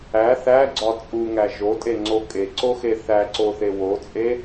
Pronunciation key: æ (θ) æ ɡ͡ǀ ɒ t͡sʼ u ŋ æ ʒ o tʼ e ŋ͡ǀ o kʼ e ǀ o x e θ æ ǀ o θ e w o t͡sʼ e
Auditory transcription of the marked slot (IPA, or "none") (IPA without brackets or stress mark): θ